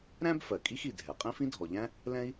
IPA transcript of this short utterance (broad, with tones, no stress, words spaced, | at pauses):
ɾæ̃˥b fɜ˩kʼi˥xi˩dʱɛ˩ qʼĩ˥fĩ˥dʱɔ˩ʎæ̃˥ | lɛ̃˥i̯